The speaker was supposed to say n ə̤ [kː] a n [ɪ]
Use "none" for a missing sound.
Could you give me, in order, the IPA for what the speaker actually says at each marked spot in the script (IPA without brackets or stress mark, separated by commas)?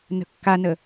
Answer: kː, ə